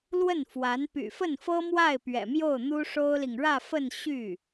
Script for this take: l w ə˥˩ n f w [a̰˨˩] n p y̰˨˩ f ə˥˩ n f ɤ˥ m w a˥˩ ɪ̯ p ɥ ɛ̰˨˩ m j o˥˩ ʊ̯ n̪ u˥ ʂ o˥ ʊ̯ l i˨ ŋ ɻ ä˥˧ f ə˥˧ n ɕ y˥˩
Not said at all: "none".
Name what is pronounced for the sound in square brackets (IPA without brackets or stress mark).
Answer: a˧˥